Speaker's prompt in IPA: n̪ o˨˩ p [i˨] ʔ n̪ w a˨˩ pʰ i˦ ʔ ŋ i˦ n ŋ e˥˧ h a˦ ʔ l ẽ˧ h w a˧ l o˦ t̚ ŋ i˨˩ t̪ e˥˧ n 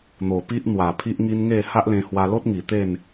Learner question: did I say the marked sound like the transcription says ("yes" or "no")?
no